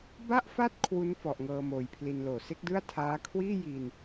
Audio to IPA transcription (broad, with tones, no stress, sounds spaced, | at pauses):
b a˦˥ ʔ f a˦˥ t̚ kʰ w u˦˥ n f ɔ˨˩ ʔ ŋ ɤː˧ m oː˨˩ j pʰ l i˧ n l oː˨˩ s e˦˥ k̚ d ɯ˥˩ a̯ tʰ aː˦˥ kʰ w iː˥˩ j i˧ n